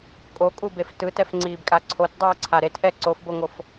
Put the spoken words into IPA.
kʼ o kʼ u b e f t ɯ t ɛ f ŋ͡ǀ iː b kʼ a ǀʰ o t dˤ ɯː ǀʰ a ɾ e t ʔ ɛ ǀ o f b o ŋ o f

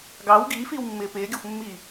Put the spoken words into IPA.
ɡ ɑ w ɡ iː f iː w mː ɪː p ɪː ɡʲ ɔ xʷ mː i

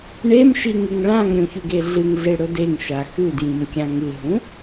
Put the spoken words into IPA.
ɳ e m ʃ i ŋ ɨ ŋ ɭ ã ŋ ɾʲ ũ ç ʉ ɡ e ɮ ɨ ŋ ɮ e ɽ ɵ d e ŋ ʃ a x ʉ d j ĩ m kʲ ã ŋ ɨ ɦ ũ

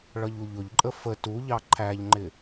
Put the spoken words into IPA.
ɭ ʌ ʎ u ʎ ʊ ʎ ǃʼ ə f ə t u ʎ ɑ ǃʰ æ ʎ ŋ͡ǃ ɪ

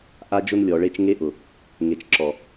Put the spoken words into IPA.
ʔ a˦ d͡ʒ ʊ˦ n lʲ ɔ˨ ɭ e˦ t͡ʃ ŋ e˦ ʔ ʊ˨ | ŋ e˨ t͡ʃ ǁ ɔ˨

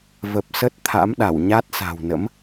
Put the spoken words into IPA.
v ə˨˩ p̚ s ə˦˥ t̚ t̪ʰ a̰˧˥ m ɗ a˧˩ w ɲ a˦˥ t̚ s a̤˨˩ w n ə̰˧˥ m

